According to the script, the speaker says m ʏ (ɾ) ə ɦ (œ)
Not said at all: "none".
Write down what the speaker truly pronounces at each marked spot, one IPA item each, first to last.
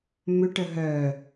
ʈ, œ

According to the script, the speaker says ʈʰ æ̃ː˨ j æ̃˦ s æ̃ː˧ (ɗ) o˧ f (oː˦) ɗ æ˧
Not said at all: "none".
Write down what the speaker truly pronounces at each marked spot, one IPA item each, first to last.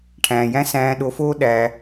ɗ, oː˦

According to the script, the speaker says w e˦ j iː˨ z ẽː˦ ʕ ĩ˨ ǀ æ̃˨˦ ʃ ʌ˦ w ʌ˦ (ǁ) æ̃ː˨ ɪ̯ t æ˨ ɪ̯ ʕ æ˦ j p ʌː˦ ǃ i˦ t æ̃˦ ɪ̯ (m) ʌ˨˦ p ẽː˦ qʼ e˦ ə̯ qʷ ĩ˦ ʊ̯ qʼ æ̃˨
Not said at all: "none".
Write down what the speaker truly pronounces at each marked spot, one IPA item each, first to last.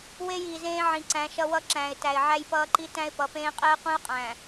ǁ, p

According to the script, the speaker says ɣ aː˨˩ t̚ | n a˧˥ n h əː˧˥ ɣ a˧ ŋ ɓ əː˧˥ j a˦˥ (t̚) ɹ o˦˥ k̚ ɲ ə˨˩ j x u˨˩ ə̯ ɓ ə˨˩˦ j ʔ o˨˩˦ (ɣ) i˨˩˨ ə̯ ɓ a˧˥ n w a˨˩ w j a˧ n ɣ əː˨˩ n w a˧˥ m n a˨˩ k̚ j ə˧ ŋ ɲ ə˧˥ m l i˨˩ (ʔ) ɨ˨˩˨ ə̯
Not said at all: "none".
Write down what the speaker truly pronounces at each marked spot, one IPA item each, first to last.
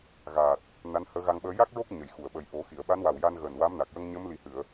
k̚, x, h

